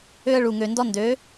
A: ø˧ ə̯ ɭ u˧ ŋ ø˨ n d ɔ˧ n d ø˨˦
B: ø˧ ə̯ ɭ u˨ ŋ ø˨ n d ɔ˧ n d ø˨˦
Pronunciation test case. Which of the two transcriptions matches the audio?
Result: B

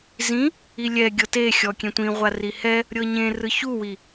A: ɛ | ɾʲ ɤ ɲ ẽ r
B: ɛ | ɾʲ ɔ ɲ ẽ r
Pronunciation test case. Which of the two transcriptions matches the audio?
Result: A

